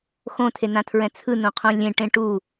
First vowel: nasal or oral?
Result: nasal